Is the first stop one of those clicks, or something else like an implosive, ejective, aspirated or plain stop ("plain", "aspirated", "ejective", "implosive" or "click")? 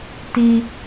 plain